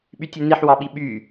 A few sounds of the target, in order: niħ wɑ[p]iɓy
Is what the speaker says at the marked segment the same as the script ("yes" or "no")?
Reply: no